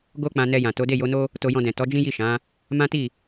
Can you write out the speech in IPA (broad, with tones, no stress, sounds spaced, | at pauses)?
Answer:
ɡ o˦ k͡p ã˧ n ɛ˧ j ã˨ t o˨˦ d e˦˨ j o˨˦ n o˦ | t o˧ j ɔ̃˧ d ɛ̃˨ t ɔ˨˦ d͡ʒ ĩ˦ j i˦˨ ʃ ã˨˦ | m ã˦ t i˦˨